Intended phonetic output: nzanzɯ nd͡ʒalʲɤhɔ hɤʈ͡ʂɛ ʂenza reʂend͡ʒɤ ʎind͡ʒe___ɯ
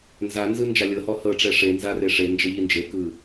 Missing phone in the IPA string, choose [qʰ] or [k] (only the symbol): k